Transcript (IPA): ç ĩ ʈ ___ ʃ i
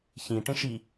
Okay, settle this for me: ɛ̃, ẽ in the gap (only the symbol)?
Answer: ẽ